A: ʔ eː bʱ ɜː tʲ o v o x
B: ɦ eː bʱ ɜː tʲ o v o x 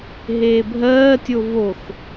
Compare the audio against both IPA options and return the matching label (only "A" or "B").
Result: B